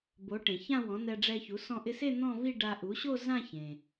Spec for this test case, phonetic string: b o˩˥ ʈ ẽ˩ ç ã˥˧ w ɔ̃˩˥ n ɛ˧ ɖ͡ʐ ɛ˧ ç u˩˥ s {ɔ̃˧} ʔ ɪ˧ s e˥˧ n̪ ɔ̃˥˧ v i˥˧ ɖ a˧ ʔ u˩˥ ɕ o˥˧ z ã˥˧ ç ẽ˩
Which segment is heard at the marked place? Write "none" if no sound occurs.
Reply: ɔ̃˧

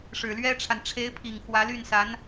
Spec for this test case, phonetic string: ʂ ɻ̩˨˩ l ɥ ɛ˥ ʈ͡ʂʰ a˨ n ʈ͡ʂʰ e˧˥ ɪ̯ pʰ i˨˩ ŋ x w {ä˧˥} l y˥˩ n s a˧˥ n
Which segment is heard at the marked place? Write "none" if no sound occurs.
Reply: ä˧˥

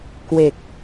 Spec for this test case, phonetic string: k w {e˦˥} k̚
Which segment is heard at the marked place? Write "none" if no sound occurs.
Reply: e˨˩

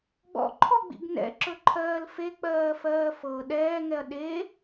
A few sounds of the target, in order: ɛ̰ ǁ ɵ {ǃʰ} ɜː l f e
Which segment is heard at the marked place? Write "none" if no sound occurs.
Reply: ǃʰ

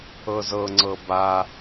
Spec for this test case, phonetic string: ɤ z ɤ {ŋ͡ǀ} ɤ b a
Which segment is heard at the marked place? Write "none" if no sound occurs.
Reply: ŋ͡ǀ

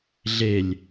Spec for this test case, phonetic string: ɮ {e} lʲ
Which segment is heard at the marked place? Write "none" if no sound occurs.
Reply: e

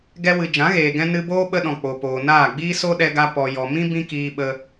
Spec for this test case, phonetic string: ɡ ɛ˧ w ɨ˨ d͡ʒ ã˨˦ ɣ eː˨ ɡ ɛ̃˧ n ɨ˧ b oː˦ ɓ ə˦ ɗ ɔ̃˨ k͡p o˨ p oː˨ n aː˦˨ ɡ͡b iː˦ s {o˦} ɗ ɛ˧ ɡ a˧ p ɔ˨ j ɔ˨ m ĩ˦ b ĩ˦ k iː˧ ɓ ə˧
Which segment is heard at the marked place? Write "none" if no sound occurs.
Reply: o˦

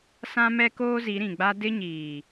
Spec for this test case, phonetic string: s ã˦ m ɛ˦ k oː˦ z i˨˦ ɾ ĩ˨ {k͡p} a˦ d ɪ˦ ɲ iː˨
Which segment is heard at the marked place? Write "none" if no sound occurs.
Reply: ɡ͡b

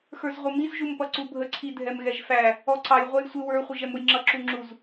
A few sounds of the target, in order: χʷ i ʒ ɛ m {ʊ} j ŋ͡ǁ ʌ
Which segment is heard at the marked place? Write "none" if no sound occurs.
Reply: ʊ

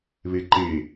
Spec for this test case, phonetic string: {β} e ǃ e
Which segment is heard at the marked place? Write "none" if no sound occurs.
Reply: β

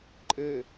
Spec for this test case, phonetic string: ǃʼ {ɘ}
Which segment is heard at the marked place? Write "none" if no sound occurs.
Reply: ɘ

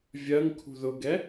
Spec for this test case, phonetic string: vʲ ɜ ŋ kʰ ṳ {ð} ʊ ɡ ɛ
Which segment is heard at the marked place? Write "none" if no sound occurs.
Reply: ð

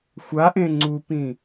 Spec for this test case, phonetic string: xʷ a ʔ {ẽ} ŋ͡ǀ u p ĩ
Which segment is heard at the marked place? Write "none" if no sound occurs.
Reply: ẽ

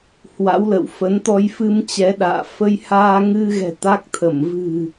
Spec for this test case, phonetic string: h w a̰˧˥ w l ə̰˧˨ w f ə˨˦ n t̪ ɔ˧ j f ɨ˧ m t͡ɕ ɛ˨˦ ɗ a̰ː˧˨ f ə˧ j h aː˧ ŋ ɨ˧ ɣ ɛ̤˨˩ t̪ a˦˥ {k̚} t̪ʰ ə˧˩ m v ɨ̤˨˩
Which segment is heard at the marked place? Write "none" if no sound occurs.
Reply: k̚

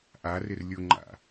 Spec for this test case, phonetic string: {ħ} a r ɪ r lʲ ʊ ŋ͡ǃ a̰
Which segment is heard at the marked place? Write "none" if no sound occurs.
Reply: ʔ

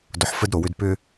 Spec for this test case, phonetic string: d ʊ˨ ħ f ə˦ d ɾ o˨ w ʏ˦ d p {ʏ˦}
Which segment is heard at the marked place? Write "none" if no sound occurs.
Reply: ʏ˦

